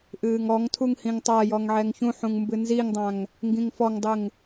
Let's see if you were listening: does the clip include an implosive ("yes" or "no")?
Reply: no